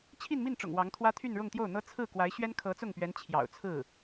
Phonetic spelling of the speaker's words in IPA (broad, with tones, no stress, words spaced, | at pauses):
t͡ɕʰi˥˧nmi˥˩nʈ͡ʂʊ̰˨˩ŋ wɑ˧˥ŋt̪ʰwä˥ t̪ʰy˥˧nɻʊ˥˧ŋt̪jo˥˩ʊ̯n̪ɤ˥ t͡sʰɹ̩˥˩ kwa˧˥ɪ̯ɕɥɛ˥n kʰɤ˧˥t͡sʊ˥˩ŋpɥɛ˧˥n t͡ɕʰjɑ̰˨˩ʊ̯t͡sʰɹ̩˥˩